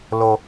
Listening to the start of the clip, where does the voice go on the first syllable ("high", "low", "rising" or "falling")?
low